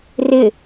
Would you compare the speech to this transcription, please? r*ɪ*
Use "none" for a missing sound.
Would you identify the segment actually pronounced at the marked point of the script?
ɪ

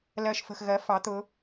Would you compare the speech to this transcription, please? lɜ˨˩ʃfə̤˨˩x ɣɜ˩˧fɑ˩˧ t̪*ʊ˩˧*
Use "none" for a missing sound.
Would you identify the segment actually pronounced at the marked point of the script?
ʊ˩˧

